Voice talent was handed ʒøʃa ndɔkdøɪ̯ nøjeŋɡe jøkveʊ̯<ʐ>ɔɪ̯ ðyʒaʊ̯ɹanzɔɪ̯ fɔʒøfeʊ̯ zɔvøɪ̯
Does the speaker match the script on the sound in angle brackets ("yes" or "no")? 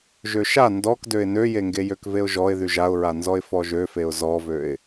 no